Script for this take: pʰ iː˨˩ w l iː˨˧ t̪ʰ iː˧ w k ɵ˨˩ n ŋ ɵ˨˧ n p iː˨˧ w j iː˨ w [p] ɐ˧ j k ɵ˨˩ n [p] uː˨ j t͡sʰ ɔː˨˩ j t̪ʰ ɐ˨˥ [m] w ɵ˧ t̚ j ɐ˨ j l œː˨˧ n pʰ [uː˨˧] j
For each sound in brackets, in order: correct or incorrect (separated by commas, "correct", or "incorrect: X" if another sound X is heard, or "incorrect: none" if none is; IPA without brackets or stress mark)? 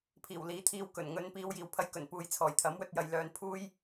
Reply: incorrect: pʰ, correct, correct, incorrect: uː˥